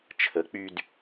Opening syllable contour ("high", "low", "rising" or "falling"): rising